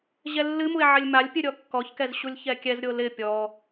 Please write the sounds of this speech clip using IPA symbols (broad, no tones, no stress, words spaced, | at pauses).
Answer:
ʑɛlːɨmue̯ ʕɪlʲmalʲpʲɨ ɾʲɔkːɔçkɛz ɕulʲçɛkʲɛzɾʲo lɪ pʲɔ